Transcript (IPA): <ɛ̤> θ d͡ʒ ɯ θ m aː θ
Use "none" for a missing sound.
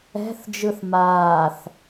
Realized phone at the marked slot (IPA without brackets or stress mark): ɛ̤